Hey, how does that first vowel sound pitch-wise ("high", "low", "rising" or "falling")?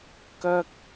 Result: high